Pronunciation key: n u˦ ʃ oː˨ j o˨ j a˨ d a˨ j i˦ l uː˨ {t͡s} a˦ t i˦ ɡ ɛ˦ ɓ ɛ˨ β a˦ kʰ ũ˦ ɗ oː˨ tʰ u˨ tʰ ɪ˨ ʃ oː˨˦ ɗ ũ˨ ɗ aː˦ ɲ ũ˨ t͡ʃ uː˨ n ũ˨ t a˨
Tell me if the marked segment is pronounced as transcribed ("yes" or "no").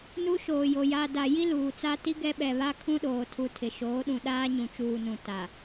yes